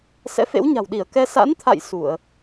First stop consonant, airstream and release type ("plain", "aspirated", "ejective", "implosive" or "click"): implosive